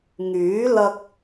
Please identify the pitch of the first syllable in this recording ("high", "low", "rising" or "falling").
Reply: rising